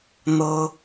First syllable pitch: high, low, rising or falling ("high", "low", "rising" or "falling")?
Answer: high